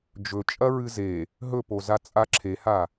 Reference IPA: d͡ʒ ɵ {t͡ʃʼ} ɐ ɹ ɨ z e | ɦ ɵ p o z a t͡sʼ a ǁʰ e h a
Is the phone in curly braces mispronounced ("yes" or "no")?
no